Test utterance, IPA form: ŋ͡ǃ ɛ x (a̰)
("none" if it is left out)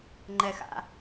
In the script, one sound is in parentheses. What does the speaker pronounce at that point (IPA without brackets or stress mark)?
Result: a̰